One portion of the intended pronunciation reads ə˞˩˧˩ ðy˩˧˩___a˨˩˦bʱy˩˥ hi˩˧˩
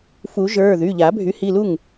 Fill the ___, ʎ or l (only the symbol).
ʎ